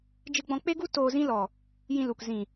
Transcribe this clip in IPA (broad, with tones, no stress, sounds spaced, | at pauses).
d͡ʒ ɨ˧ ɡ͡b ɔ̃˧ k͡p e˦ ɡ u˦ t oː˧ z ĩ˦ l ɔ˨ | j ĩ˧ l u˨ k z ĩ˨